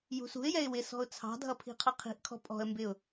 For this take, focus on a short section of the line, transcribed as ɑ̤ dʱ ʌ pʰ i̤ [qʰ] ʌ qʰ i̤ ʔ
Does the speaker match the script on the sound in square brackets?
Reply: yes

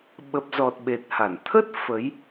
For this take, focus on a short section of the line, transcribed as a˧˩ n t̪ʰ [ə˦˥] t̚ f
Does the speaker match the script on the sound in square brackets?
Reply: yes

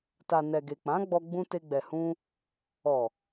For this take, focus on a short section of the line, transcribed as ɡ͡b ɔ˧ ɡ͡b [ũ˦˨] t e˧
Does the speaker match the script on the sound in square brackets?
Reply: no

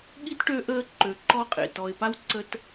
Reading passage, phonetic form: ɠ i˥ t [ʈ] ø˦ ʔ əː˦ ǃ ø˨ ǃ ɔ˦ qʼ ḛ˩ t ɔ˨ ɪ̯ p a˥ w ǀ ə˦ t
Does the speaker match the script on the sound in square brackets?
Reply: yes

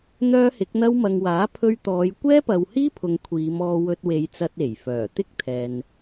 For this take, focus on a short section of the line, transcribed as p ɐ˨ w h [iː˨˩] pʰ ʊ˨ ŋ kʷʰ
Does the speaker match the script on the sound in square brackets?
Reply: no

